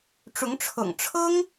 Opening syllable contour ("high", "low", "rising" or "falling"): rising